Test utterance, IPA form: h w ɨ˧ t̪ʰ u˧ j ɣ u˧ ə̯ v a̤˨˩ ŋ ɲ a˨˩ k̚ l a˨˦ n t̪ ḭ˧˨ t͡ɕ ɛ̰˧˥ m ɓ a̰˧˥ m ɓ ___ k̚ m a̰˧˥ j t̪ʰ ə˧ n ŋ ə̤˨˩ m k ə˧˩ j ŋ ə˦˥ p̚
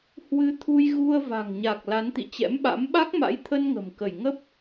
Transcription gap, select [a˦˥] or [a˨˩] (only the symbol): a˦˥